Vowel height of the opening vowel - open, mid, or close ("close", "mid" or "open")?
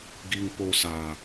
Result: close